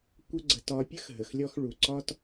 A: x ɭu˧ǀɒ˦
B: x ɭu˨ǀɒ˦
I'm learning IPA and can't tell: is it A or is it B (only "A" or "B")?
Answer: B